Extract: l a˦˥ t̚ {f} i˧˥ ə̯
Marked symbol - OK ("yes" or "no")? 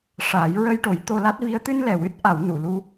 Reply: no